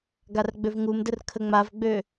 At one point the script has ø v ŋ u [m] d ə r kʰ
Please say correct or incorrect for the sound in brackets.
correct